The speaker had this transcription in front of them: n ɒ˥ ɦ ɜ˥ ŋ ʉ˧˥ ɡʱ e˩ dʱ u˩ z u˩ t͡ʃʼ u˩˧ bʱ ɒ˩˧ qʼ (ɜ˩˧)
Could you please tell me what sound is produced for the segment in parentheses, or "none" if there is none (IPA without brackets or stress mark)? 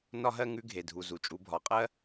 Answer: ɜ˥